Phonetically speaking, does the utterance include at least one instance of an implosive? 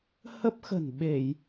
yes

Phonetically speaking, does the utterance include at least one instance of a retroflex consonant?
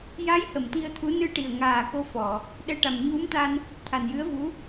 yes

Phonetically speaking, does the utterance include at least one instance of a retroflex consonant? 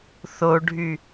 yes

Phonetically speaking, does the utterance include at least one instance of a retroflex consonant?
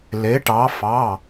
yes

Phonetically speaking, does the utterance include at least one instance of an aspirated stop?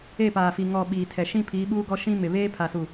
yes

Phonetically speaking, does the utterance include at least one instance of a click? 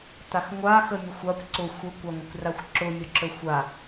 yes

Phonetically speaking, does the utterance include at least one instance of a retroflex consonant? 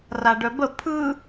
yes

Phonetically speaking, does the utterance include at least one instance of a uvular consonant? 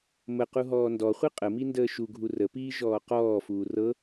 yes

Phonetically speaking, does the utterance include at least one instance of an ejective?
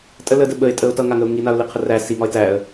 yes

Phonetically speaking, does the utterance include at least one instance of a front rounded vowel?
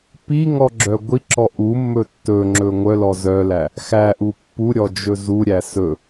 yes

